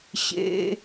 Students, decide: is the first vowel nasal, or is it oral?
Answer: oral